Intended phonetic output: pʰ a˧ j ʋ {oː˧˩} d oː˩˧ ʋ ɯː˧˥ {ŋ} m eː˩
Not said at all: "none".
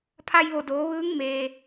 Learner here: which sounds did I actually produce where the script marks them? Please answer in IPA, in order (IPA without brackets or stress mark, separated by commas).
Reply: o˧˩, ŋ